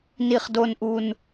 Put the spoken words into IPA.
ni˨χdo˨nʔu˨n

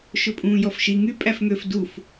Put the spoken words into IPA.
ʃɵpʼũːjɔfʃi ŋy pʼæfŋøf duf

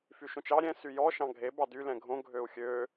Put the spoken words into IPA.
fyʃõt͡ʃɑ ɾʲɛ̃ syjɔ ʃɑ̃ɡʱe bɑdy lɛ̃ɡʱõ ɡʱøu̯xʲø

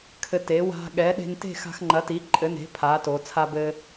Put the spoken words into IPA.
kʰɘ˧te˩˥ wa̤˧ ɠɛ˩˥ɗe̤˧nte̤˥˨ xa̤˧xŋ͡ǃɐ˩˥ti˩˥ ǃʼɘ˩˥ne̤˩˥ pʰaː˩˥to˩˧ t͡sʰa˧bɘː˧

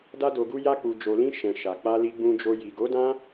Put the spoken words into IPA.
da˧do˨ɡu˧ ja˧k͡pu˨d͡ʒo˨lĩ˧ ʃɛ̃˨ʃa˨ k͡pa˧li˧ɡ͡bũ˧d͡ʒo˧ ji˨ɡo˨˦dã˦

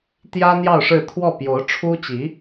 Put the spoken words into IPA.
t̪jä˥n̪jɑ˥˧ʊ̯ʂɻ̩˥˧ t̪ʰwɔ˥˩pjo˧˥ʊ̯ ʈ͡ʂʰu˥t͡ɕi˧˥

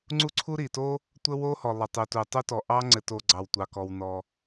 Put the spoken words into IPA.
ŋ͡ǀu˥ǀʰu˥ ɾi˩to˥ | tʷə˥wo˥hɔ˩ lˠə˩tˤu˩ tu˩ tˤu˥tɔ˩ ʔɑ˥ŋ͡ǀɘ˩to˩ ɡ͡ǀɑ˩wtʷɑ˩kɔ˩wnɔ˩

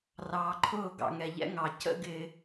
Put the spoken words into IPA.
rɑː˨ǃʰʊː˦˨ ɡɑ̰˨ŋɛ˨ʎɛ̰˦ŋɑ˨ cə̰˦ ɡɪː˦

